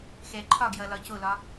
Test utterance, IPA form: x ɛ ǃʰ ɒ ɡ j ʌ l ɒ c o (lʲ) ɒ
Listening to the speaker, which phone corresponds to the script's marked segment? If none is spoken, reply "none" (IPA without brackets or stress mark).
l